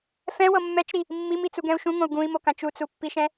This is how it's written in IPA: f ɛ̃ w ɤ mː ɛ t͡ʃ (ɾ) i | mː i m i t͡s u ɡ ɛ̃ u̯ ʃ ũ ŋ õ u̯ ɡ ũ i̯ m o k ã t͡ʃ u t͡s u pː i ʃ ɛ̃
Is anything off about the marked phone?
no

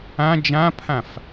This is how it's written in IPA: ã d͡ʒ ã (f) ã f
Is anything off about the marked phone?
yes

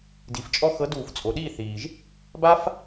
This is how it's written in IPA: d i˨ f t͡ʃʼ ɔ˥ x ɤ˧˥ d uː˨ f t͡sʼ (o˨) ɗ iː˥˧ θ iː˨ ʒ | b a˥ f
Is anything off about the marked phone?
no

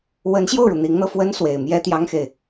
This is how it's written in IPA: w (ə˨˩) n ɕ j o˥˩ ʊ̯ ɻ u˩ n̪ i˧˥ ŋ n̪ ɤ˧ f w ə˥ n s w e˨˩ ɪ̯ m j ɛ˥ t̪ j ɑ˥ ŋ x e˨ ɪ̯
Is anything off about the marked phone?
yes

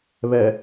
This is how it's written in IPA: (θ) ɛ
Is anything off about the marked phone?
yes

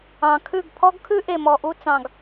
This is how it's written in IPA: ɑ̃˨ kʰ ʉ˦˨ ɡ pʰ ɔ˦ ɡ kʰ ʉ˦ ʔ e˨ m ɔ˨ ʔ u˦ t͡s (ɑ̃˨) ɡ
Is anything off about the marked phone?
no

